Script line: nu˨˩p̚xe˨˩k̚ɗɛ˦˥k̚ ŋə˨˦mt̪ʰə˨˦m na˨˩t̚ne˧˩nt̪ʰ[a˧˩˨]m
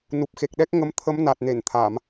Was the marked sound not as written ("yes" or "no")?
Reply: no